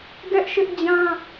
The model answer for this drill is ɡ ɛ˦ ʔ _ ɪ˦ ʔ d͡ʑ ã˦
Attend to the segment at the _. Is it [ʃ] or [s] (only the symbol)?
ʃ